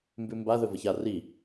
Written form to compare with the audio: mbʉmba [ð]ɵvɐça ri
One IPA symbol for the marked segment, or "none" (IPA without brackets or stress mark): ð